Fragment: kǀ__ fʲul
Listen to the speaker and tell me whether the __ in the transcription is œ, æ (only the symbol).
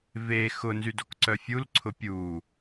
œ